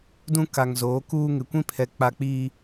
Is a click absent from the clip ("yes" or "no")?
yes